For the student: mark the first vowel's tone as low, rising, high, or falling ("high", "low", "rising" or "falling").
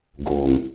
low